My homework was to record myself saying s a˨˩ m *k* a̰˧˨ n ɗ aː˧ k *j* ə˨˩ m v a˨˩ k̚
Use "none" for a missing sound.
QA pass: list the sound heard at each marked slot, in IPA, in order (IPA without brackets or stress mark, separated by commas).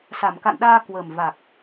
k, w